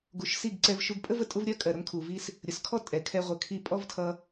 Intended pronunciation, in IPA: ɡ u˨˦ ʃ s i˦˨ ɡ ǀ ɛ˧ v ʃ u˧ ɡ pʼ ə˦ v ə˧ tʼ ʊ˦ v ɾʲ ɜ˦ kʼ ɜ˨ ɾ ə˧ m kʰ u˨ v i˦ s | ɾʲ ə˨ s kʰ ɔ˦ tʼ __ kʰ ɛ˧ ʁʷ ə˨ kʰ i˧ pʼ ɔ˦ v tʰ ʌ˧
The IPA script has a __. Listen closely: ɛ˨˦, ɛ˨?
ɛ˨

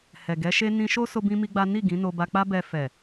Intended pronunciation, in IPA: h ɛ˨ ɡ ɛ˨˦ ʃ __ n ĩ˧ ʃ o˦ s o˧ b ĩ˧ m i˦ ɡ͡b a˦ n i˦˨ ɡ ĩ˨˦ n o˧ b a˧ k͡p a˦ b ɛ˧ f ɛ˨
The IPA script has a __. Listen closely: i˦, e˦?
e˦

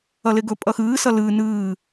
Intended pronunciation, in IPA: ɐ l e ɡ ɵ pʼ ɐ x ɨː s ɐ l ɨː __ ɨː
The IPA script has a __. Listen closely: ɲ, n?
n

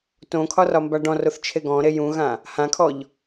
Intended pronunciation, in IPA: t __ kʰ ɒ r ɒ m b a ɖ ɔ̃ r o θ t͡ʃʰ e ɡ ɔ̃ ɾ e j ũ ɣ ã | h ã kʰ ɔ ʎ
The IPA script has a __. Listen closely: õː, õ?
õ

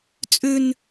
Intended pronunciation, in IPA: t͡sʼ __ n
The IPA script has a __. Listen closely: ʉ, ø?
ʉ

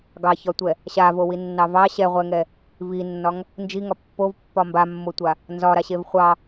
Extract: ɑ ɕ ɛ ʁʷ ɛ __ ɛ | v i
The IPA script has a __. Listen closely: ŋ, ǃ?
ŋ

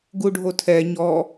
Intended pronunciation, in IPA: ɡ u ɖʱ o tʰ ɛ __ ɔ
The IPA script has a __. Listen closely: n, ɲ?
ɲ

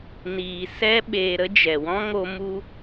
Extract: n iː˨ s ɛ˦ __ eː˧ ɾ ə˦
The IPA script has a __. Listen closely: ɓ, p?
ɓ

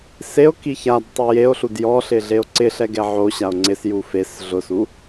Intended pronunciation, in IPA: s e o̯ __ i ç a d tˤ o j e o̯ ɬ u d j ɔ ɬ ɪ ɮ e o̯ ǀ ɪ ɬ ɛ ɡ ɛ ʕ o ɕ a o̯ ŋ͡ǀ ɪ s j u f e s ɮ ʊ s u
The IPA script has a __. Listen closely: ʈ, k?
k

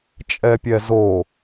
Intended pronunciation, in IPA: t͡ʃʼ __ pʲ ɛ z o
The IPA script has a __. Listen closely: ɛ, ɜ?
ɛ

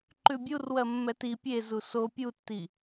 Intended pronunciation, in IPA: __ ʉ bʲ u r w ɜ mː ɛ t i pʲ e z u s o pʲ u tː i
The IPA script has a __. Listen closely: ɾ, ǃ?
ǃ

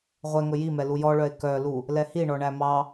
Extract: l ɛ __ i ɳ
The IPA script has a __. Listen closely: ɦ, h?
h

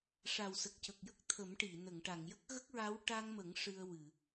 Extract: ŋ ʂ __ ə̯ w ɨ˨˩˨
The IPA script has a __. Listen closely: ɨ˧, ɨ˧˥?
ɨ˧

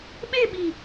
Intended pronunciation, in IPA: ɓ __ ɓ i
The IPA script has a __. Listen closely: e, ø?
e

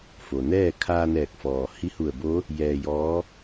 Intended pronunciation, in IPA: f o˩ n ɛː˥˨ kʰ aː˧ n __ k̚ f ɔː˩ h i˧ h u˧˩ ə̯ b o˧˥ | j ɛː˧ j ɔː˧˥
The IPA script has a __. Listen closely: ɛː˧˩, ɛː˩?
ɛː˧˩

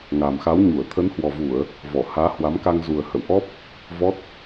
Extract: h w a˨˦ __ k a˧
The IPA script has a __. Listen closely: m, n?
m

